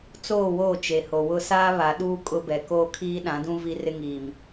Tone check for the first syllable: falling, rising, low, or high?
falling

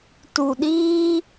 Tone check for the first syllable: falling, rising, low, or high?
low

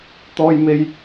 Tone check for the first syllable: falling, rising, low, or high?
high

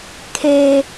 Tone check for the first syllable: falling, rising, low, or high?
high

